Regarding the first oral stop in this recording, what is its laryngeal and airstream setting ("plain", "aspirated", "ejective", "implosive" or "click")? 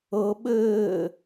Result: implosive